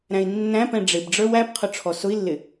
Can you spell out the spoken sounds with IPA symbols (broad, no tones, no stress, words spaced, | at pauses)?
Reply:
ɾæ̃i̯nːæ̃pɛ̃ ɖ͡ʐɪbɖ͡ʐə˞w æpqʰʊ ʈ͡ʂʰɔsʊi̯lːɪ